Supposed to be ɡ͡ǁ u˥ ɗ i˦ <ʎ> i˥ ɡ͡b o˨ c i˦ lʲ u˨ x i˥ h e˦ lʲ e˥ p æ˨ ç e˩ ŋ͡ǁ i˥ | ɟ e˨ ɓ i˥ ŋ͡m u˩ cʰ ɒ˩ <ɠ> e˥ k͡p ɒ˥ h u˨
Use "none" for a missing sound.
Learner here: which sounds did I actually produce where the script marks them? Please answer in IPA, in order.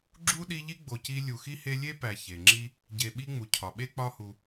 ʎ, ɓ

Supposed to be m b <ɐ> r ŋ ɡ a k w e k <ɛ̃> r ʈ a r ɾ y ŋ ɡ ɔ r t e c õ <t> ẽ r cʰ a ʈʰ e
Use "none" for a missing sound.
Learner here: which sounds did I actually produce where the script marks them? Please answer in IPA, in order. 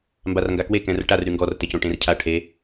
a, ɛ̃, ʈ

